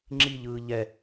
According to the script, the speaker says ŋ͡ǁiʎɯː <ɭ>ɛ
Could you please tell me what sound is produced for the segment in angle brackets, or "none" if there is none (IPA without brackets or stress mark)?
ʎ